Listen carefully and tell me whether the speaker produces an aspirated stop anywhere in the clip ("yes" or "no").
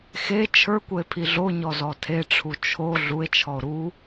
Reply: yes